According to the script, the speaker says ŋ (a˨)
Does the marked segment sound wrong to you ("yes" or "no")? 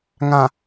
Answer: yes